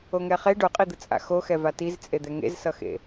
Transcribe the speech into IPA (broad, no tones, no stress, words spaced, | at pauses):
oŋɛχe ɖoqʼid̪ɯ t͡sʼa̰xoxɛva tizt͡sʼed̪ɛ ŋḛzsʌxḛ